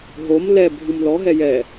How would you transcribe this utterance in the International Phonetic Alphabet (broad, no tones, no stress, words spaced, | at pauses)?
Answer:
ɦom lɛbʱũm lɔɦɛ jɛ